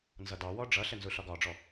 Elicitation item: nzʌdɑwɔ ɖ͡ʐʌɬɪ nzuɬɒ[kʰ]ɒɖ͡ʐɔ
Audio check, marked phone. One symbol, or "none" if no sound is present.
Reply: ɡ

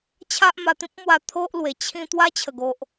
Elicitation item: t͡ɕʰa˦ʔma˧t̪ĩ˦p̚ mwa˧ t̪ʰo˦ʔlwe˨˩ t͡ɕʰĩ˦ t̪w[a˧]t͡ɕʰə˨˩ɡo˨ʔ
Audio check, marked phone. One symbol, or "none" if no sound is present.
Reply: a˦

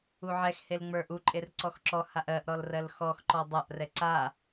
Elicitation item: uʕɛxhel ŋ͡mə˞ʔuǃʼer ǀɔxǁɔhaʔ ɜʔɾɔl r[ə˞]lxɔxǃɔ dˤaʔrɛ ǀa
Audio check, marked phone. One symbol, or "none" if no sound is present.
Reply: ɜ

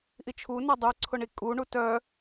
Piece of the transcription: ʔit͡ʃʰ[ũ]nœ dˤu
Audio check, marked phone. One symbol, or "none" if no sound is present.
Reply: u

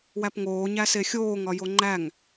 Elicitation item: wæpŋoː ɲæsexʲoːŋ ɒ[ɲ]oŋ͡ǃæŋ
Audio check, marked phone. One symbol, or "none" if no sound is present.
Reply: j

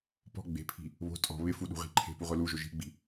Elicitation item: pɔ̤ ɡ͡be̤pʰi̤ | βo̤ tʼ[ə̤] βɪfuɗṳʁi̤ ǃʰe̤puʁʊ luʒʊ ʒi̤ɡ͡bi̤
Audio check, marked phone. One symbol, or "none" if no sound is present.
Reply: ɔ̤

